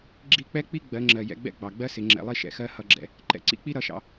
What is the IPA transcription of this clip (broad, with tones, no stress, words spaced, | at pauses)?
ɡ͡ǁi˦˨k͡pɛ˦k͡pi˦ ɡ͡bɜ˨˦ŋ͡ǁɜ˨ jɛ̰˧ɡ͡bɛ̰˦ɡ͡bɑ˨ɡ͡bɜ˦ sɪ˨˦ŋ͡ǁɛ̰˨˦lˠi˦ ʃɛ̰˧xɜ˦ hʌ˧ɡ͡ǁɛ̰˧ | ǃɛ̰˧ǀḭ˦k͡pi˦ ɾʌ˧ʃɑ̰˧